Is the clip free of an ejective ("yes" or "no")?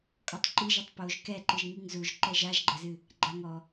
no